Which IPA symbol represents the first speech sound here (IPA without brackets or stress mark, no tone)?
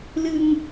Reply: l